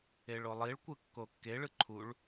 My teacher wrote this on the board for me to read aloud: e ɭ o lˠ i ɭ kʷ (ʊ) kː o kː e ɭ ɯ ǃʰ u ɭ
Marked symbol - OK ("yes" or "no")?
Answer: no